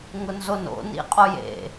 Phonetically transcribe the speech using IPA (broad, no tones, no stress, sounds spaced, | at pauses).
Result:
ŋ ʊ n z o n o̰ n ḭ qʼ o j ḛ